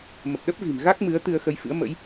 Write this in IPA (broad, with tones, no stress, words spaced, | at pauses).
mə˨˩p̚ ɗə˦˥p̚vi̤˨˩m ɣa˦˥k̚mɨ˨˦ə̯ t̪ɨ˧ə̯xə˧jfɨ̰˧˥ə̯ mə̰˧˥j